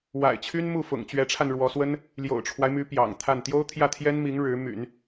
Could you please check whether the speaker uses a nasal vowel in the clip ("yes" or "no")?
no